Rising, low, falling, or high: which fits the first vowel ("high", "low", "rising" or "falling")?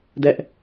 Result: high